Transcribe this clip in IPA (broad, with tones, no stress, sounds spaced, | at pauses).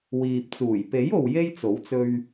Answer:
w iː˨ p̚ t͡s uː˨˩ j p e˨˥ j o˨ w j e˥ j t͡s o˨˥ w t͡s ɵ˧ ɥ